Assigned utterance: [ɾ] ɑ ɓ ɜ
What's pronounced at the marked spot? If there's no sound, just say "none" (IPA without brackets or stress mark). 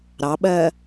ɾ